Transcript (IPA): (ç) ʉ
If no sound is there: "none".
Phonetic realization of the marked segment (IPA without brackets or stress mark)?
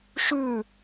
ʃ